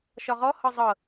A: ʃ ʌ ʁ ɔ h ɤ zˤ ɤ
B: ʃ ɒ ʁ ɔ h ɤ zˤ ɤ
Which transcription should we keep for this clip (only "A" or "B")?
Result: B